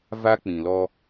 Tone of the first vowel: high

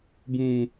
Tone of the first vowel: low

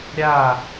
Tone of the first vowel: falling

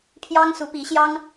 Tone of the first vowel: high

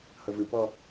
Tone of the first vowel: low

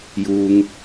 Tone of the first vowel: low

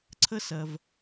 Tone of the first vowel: high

